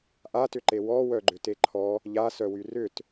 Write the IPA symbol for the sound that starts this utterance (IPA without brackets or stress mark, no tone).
ʔ